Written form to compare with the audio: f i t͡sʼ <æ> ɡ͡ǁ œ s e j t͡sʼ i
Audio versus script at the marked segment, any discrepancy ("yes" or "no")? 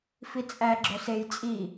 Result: no